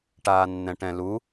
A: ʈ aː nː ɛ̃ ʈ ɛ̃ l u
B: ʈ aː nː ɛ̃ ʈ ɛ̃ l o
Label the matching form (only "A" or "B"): A